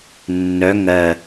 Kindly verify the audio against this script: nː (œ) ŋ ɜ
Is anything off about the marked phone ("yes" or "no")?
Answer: no